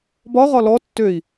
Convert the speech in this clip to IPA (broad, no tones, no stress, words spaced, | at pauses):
bɒʁɒ lɔ tːøi̯